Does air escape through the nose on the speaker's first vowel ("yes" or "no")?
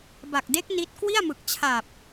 no